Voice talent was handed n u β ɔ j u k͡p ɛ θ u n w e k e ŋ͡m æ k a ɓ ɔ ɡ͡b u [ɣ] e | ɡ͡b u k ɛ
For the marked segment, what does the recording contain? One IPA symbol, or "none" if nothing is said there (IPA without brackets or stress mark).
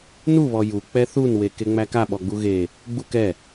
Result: ɣ